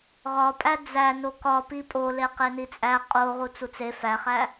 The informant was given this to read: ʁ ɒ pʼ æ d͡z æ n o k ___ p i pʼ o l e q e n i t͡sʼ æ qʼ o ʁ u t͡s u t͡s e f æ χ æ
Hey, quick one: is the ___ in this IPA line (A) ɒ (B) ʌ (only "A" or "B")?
A